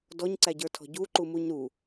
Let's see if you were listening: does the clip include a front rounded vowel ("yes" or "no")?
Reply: no